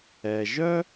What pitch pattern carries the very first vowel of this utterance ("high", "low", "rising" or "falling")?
low